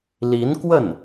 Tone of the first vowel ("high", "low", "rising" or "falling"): rising